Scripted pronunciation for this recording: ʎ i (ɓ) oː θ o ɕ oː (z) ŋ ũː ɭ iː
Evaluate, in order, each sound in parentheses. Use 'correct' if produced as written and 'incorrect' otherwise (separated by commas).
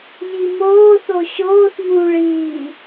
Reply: incorrect, incorrect